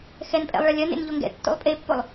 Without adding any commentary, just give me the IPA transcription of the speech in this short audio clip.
x ɛ n pʼ ɛ̰ lˠ ɭ ɐ lʲ ɐ n ḛ n ʎ o ŋ ɡ ɛ̰ tː o̰ lˠ pʼ e pː o lˠ

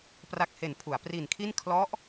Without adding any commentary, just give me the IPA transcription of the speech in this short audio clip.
p r a˨˩ k̚ h e˩˦ n pʰ u˩˦ a̯ p r i˨˩ n kʰ i˥˩ n kʰ l ɔ˦˥ ʔ

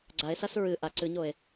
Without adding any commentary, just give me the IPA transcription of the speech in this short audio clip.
ɡ͡ǀ a e̯ s a s ɹ ɨ ʔ a ǀ ɨ ɲ o e̯

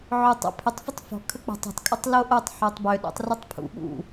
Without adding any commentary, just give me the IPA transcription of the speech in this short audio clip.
ʕ œ tˤ a̰ pʰ ʏ tˤ f e tˤ f ɔ̤ kʰ ə k͡p ə̤ tˤ ə̤ tˤ kʼ ə tˤ l o ʔ o tˤ ħ ɔ tˤ b ø ɗ a̰ tˤ r ʏ tˤ pʰ ṵ ɓ ṵ

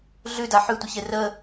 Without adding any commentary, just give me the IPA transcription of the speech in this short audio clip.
ɮ ʉ d a ħ ʉ tʷ ɪ ç e r ə

